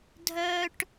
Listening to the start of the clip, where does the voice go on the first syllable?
high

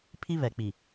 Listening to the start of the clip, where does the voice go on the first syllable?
high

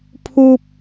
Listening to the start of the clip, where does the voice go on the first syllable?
high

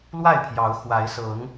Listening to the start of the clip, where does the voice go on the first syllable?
falling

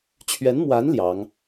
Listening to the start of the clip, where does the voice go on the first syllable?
rising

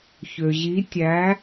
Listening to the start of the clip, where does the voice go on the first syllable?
low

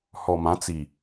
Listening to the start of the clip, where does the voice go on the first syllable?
low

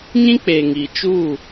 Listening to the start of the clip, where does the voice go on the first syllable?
high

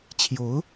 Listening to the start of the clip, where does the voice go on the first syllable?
rising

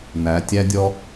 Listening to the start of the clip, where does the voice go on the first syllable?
rising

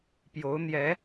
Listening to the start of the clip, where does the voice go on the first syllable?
rising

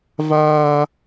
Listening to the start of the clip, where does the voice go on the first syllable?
high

